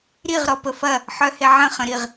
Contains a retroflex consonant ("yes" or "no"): no